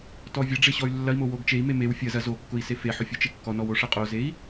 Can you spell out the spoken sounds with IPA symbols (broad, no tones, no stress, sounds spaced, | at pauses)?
t ɔ vʲ ɐ ɖ͡ʐ e ɕ ɔ y̯ lː ɐ i̯ m o w o ɡ t͡ʃ e i̯ m e m e w fʲ ɐ z ɐ z o kː ʊ i̯ s e f e ħ ʊ fʲ o t͡ʃ e kː ɔ n ɔ w o ʂ ɐ qʼ o z e i̯